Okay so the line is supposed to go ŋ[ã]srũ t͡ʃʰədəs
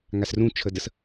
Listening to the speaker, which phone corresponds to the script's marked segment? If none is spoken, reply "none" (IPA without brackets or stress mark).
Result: a